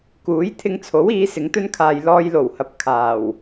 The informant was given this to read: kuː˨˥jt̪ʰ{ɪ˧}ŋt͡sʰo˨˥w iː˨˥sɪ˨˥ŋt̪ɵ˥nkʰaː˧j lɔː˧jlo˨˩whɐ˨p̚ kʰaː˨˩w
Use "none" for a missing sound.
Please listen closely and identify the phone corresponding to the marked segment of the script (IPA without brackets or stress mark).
ɪ˧